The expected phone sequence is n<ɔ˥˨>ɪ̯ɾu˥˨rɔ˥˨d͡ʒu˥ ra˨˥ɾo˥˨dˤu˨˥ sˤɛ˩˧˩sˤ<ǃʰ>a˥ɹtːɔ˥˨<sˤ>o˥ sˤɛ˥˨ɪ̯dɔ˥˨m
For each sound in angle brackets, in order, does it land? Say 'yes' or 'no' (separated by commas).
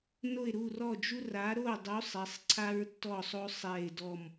no, no, yes